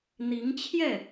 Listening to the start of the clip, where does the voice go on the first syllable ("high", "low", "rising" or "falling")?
rising